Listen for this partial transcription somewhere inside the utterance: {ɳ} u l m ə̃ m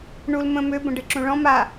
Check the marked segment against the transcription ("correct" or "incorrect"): correct